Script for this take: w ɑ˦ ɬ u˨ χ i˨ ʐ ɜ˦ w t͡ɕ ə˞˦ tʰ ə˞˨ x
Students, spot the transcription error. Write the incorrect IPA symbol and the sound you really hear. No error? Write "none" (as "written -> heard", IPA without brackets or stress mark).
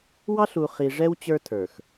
ɜ˦ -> ɛ˦